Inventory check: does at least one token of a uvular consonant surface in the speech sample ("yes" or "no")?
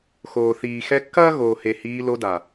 no